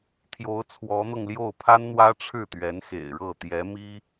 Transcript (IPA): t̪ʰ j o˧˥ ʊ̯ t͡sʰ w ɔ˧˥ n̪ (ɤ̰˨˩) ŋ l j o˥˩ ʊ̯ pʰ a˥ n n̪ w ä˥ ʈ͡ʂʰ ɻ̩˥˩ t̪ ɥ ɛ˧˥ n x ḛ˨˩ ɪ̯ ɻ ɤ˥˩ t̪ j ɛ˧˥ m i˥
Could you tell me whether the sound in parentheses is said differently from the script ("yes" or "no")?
yes